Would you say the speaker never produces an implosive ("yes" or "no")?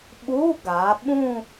no